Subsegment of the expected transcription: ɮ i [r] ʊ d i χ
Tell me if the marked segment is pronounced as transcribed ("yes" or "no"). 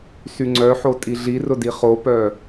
yes